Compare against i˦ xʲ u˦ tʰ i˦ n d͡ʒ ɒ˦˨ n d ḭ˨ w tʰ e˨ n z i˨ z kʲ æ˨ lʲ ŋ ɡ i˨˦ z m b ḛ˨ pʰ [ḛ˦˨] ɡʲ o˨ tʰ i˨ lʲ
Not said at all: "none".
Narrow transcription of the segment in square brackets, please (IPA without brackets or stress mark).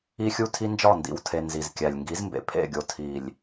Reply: ḛ˦˨